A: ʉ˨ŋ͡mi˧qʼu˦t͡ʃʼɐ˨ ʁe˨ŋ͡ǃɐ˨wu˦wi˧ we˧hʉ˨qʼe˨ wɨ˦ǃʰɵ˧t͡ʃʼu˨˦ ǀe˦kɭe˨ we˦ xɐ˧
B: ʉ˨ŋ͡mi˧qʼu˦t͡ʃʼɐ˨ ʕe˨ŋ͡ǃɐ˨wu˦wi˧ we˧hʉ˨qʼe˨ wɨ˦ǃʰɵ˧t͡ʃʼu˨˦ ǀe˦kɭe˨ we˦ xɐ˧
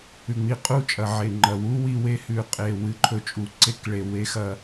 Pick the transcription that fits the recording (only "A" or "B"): B